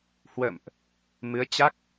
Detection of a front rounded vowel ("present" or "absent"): absent